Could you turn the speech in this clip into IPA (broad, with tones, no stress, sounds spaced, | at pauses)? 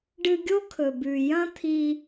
ɖ ɨ˧ ɡʲ o˦ kʰ ɵ˨ b ʉ˨ j ɐ̃˦ t̪ʰ i˧